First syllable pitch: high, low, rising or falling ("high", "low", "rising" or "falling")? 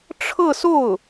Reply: falling